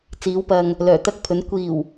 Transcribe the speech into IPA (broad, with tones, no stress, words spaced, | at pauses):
t͡siː˨˥w pɐ˨ŋ | lœː˨˩t̪ɐ˥k̚pʰɵ˨˥n kʷiː˨˩w